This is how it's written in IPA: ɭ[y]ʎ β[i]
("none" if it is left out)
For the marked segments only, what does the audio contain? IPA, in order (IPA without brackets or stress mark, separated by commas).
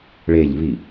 e, i